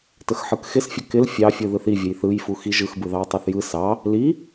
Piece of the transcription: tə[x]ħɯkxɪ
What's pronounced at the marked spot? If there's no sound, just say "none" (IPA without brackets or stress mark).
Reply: x